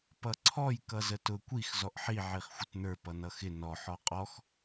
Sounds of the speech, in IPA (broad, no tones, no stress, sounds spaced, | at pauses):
p ʌ ǀʰ ɔ j k ʌ z ə t ʊ kʷ i x z ɔ ʔ ħ i ʕ i χ xʷ ɪ t n ə˞ p ʌ n ʌ x ɪ n ɔ ħ ɔ qʼ ɔ x